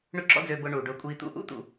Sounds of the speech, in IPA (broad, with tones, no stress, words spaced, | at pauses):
ɳø˥ǁɔ̰˥d͡zøː˧bʊː˧ ɳu˩ɖʊː˧kʷʼiː˧t̪ṵ˥ ʔṵ˥t̪ṵ˩